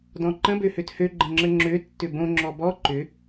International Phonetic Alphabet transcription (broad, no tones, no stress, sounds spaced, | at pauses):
d ɔ̃ ǃ ə̃ b ø h ø t h ø ɡ͡ǃ ə̃ ŋ͡ǁ ə ŋ͡ǁ ø tː ʏ b õ ŋ͡ǁ ɔ b ɔ ǃ ʏ